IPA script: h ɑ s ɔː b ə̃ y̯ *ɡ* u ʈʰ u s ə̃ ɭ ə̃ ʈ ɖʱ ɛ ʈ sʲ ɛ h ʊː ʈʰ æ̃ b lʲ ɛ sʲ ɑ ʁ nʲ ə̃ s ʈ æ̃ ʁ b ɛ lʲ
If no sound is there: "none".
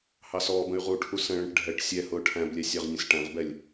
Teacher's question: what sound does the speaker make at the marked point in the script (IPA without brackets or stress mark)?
ʁ